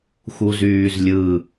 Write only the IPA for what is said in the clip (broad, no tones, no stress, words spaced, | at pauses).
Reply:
xuzyːzlʲɯ